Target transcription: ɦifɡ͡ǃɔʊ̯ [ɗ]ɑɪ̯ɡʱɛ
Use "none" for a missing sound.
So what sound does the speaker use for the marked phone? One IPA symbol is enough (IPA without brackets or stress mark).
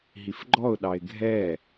ɗ